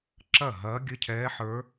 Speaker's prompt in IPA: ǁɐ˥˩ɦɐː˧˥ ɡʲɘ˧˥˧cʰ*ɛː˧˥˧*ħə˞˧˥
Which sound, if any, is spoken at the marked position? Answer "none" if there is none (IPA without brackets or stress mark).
ɛː˧˥